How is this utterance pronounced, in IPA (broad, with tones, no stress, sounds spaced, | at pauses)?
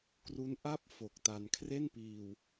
k r u˦˥ n ʔ a˥˩ p̚ f o˨˩ k̚ t a˧ n kʰ r e˥˩ n p iː˧ w